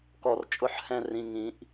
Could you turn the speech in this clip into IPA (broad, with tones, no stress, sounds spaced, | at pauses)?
k ɔ˧˩ r t͡ʃʼ ʊ˥˧ ħ h ɛ̃˥˧ r ĩ˩˧˩ ŋ ĩ˨˩˦ ʔ